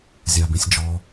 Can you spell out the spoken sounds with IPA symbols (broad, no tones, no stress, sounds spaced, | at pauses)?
zʲ a b ĩ sʲ d͡ʒ ɔ